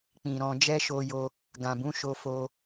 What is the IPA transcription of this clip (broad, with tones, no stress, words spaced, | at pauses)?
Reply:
k͡pĩ˨ɾɔ̃˧ d͡ʒɛ˦ʃo˧jo˧ | ɡã˨bũ˨˦ ʃo˧fo˧